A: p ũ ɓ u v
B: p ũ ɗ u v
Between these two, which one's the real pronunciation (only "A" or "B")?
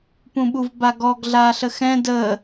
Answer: A